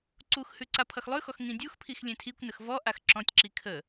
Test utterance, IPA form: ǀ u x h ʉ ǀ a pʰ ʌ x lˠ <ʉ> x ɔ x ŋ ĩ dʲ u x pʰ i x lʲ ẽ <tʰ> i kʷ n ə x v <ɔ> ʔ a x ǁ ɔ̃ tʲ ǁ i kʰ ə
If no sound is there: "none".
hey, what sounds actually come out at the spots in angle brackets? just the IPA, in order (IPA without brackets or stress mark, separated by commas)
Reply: ʉ, tʰ, ɔ